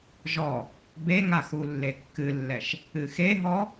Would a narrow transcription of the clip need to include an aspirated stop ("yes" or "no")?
no